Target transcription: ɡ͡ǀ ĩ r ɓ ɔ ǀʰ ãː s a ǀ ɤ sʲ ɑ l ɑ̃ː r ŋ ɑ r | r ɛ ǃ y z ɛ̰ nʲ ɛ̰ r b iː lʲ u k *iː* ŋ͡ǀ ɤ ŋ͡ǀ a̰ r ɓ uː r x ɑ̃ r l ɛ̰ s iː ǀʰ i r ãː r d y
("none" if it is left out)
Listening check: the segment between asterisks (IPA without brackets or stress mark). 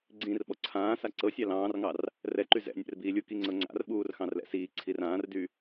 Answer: i